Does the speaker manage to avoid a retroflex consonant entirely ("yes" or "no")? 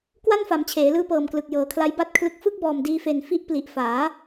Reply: yes